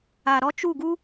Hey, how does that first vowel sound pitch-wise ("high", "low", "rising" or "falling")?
low